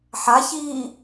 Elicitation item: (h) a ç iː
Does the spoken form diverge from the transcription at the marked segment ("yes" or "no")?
yes